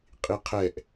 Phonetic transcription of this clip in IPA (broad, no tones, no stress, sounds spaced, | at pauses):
qʼ i qʰ ɛ ʔ